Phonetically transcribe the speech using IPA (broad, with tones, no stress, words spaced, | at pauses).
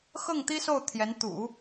xɤ˥˩ŋt̪i˥ so˥˩ʊ̯ t̪ʰjɛ˧˥n t̪ṵ˨˩˦